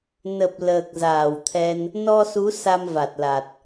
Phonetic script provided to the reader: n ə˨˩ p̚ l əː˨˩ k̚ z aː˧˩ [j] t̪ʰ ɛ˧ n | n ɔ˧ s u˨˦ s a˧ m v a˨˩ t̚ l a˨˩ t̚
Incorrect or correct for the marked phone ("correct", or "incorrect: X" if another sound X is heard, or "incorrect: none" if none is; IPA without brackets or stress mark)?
incorrect: w